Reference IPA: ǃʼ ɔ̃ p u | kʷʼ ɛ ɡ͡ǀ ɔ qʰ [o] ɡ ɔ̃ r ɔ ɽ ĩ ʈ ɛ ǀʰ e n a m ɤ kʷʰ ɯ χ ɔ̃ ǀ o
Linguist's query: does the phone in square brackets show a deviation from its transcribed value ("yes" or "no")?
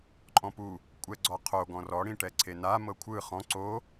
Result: no